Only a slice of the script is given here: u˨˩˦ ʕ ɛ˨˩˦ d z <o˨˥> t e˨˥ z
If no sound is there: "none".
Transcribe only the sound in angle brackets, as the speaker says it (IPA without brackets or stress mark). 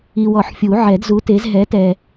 u˨˥